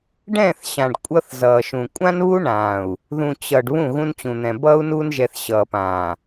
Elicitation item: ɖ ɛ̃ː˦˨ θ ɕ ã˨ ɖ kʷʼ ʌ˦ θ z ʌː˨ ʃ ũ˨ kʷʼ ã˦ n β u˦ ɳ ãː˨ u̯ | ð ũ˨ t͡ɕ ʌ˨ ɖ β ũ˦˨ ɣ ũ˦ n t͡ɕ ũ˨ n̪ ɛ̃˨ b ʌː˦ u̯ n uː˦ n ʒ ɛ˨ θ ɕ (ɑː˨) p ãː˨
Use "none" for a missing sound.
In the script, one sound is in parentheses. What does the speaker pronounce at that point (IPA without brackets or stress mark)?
ʌː˨